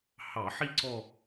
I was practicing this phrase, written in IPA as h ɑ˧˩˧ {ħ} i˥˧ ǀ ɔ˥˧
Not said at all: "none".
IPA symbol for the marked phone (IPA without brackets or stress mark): ħ